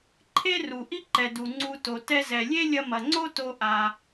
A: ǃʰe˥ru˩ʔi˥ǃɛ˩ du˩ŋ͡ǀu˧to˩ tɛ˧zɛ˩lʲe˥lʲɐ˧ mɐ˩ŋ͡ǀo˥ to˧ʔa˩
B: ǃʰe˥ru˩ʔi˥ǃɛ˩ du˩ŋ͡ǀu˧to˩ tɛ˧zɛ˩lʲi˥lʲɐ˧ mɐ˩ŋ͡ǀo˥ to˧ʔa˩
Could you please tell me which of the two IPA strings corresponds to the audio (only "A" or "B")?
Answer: A